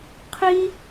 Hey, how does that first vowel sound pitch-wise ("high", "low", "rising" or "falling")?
high